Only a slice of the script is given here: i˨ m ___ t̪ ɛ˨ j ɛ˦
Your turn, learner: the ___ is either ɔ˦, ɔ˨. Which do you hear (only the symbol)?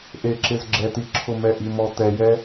ɔ˨